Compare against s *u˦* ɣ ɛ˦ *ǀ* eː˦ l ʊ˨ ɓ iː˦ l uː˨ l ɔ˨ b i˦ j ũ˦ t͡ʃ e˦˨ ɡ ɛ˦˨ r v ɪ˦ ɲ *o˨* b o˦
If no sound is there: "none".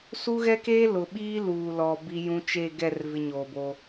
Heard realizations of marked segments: u˦, k, oː˨

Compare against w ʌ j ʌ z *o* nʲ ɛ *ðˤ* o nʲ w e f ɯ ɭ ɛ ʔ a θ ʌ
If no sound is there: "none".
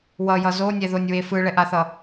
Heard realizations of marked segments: o, ð

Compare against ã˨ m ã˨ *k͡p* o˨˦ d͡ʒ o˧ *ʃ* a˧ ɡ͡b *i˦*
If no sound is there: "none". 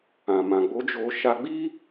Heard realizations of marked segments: ɡ͡b, ʃ, i˦

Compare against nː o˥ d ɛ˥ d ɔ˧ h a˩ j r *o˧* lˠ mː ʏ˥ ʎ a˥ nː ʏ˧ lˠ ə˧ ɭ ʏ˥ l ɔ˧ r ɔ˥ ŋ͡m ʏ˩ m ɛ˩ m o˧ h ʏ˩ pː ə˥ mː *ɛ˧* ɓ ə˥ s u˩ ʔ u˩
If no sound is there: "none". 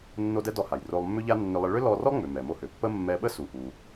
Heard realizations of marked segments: o˧, ɛ˧

